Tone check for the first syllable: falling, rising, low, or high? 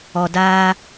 low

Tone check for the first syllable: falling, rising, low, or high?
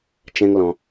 high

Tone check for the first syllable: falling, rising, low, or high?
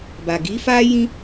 low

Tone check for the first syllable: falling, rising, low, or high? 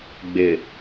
low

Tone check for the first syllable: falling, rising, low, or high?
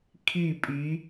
falling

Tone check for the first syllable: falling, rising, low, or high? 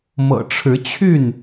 low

